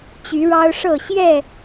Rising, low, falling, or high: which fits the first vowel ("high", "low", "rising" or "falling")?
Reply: rising